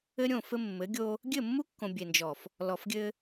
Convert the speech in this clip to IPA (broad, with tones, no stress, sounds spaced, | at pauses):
ɘ˦ ɾʲ õ˦˨ f ɘ˦ mː ɘ˨˦ ɡʲ o˦ | ɡʲ ɘ˦˨ mː u˦ kː õ˨ bʲ e˨ n d͡ʒ ɔ˨ f | l ɔ˨ f ɡʲ ɘ˦